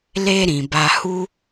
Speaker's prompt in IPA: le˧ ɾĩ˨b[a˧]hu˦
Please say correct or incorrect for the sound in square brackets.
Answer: correct